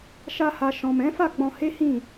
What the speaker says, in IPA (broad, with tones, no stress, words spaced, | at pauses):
ʃa˧ha˨ ʃɔ̃˨ mɛ̃˨˦fa˦˨ɡ͡bɔ̃˧he˦ hĩ˦˨